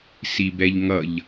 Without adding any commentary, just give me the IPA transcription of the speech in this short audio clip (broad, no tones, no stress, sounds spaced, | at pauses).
s i b ɛ ʎ ŋ ʌ ʎ